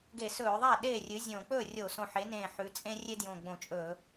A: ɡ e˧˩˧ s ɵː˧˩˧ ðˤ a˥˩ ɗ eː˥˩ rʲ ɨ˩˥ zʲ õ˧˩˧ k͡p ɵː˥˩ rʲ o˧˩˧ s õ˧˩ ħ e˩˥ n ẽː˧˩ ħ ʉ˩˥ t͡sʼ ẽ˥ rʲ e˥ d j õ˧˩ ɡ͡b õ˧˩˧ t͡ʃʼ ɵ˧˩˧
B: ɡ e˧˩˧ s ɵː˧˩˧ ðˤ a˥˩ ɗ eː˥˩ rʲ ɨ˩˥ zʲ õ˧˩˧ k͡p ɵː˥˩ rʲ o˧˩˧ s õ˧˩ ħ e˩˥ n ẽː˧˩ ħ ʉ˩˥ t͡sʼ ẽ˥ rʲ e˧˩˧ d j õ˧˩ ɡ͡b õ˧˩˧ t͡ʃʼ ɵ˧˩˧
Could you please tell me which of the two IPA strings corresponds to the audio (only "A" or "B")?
A